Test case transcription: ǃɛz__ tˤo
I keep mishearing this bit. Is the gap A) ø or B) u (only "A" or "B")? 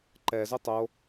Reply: A